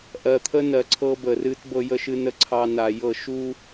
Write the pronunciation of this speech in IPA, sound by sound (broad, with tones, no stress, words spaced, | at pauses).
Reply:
ʔɜ˨t̪ʰə˦nɜ˨ ǀʰɤ˦bə˨rɨ˦t bɤ˦jə˦ʃɨ˦nə˦ ǀʰɑ˦na˨jɤ˦˨ ʃu˦